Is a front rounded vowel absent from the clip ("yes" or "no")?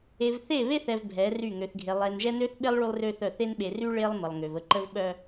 no